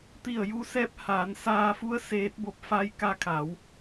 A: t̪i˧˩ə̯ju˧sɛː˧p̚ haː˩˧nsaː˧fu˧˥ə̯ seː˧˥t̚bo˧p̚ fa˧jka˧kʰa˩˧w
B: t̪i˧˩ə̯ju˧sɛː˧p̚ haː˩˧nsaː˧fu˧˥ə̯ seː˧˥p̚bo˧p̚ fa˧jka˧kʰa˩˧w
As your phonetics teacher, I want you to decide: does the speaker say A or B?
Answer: A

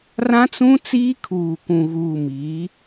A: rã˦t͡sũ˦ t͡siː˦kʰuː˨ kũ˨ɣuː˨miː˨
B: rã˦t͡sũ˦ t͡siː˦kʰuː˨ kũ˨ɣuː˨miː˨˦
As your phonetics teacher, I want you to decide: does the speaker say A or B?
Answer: B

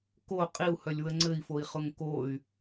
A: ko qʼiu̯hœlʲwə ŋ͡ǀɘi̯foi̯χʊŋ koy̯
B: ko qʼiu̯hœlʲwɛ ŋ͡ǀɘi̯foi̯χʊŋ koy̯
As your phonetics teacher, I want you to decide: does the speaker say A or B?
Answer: A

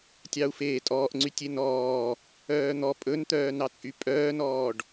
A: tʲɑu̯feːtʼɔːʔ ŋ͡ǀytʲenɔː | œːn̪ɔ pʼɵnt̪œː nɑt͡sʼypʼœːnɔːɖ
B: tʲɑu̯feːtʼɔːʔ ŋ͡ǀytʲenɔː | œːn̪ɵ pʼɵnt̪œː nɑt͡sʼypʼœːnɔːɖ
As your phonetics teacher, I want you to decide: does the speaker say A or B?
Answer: A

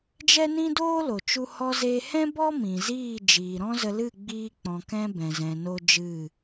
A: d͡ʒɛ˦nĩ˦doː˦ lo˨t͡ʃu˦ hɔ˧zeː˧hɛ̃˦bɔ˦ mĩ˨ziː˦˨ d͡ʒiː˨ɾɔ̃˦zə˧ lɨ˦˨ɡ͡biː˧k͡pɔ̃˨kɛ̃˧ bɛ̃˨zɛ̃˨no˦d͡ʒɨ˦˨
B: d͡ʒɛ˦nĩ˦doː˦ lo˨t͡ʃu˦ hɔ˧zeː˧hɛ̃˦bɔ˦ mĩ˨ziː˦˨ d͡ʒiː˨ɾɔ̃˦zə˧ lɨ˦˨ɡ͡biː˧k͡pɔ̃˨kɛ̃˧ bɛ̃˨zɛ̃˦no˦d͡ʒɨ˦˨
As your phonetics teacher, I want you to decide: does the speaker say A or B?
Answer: A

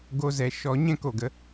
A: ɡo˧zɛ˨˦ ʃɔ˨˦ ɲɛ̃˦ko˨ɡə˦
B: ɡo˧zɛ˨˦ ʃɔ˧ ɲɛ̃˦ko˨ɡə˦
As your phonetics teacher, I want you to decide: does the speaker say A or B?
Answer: A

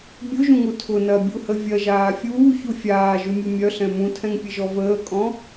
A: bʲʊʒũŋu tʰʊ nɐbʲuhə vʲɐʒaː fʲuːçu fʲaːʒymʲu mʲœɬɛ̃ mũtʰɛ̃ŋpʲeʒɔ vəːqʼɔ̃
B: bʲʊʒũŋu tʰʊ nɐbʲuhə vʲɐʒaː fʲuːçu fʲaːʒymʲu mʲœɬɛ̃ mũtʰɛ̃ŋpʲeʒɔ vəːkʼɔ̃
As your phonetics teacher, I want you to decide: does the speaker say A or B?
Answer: B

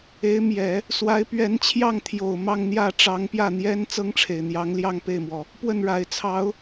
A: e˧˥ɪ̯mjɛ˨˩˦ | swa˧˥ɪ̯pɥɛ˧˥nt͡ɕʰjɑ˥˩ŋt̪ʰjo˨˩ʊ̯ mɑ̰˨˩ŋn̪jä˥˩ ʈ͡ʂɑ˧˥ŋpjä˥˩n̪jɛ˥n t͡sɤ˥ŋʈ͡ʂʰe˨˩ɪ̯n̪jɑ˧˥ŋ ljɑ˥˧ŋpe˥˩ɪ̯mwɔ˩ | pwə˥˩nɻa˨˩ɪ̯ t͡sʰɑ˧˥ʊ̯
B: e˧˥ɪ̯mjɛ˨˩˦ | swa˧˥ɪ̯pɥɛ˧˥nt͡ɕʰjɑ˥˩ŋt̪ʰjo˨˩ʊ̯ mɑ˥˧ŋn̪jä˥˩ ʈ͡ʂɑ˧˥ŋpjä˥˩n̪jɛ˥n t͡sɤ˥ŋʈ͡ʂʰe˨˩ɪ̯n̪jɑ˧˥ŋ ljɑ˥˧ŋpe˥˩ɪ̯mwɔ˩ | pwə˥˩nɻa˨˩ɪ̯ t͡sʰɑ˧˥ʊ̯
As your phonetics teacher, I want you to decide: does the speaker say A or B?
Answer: B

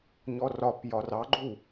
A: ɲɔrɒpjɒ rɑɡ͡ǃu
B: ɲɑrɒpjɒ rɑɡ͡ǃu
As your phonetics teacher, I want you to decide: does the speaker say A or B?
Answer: A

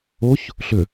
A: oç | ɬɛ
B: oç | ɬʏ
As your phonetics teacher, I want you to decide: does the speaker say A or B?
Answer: B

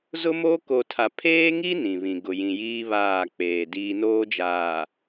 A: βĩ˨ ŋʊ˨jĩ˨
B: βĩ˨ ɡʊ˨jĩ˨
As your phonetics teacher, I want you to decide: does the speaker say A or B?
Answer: B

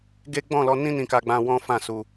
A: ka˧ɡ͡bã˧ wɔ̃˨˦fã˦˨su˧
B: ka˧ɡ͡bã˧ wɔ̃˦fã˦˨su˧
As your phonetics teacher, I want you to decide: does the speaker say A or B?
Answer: B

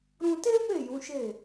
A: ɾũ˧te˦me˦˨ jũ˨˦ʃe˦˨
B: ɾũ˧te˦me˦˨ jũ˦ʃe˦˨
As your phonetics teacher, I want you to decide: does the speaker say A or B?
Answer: A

